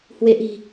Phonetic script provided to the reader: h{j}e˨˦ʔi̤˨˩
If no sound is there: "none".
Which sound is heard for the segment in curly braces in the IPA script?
w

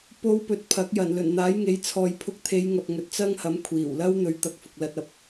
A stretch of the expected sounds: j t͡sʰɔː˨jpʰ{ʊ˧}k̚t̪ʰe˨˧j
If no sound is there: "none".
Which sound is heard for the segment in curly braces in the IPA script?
ʊ˧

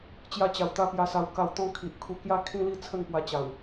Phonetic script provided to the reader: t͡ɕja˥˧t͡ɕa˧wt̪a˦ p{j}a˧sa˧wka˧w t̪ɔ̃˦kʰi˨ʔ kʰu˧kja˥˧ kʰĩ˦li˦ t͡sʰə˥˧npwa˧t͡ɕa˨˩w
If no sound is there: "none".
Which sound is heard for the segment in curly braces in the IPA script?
j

